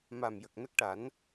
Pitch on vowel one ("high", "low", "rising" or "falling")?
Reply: low